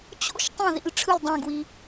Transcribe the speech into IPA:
t͡ɕ o̰˦ ʃ tˤ õ˥˩ ð ḭ˥˩ l ʈ͡ʂʰ ɯ˥˩ l dˤ ɛ̃˥˩ ɡ w i˦

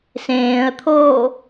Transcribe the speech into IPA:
s ẽː ə̯ t̪ʰ oː

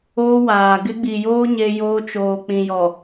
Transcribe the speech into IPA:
oː˦ w aː˨ ɡ ɪ˦ ɡ͡b i˨ j oː˦ ɲ e˦ j oː˦ t͡ʃ oː˨ k͡p ĩ˨ j ɔ˨

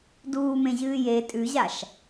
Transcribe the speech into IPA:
d uː m ẽ ʑ ɨː j e tʼ ʉ ʑ a ʃ

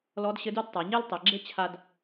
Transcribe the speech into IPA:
l ɔ˧˥ d ɕ ɘ˧˥ d u˥ d tˤ a˩˧ ɲ e˥ l tˤ ɛ˩˧ ɡ͡ǁ e˥ t͡ɕʰ a˧ d

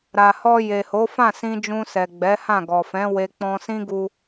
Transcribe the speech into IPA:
ɾ a˨ h ɔ˧ j e˨ h o˨˦ f ã˦˨ s ĩ˧ d͡ʒ ũ˧ s ɛ˨ ɡ͡b ɛ˨˦ h ã˦˨ ɡ ɔ˨ f ɛ̃˨˦ w e˧ k͡p ɔ̃˧ s ĩ˦ ɡ u˧

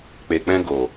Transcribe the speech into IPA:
k͡p e˨ k͡p ɛ̃˧ ɡ o˨

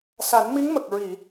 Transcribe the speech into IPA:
s a˨˩˦ n m i˧˥ ŋ m ə˨˩ k̚ ɹ i˨˩˨

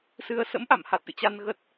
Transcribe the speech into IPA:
s ɨ˧ ə̯ s ə̰˧˥ m ʔ a̰˧˨ m h a˨˩ t̚ ʔ ɨ̰˧˨ t͡ɕ a˧ n ɣ ə˦˥ t̚

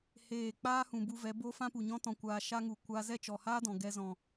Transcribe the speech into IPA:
h eː˦˨ k͡p aː˦ h ũ˨ b u˧ v ɛ˨˦ b o˦ f ã˦ p u˨ ɲ ɔ̃˦ t ɔ̃˧ kʷ aː˧ ʃ a˦ ŋ u˨ kʷ a˦ z ɛ˦˨ t͡ʃ ɔ˨ h aː˦ d ɔ̃˨ ɡ ɛ˧ z ɔ̃˨

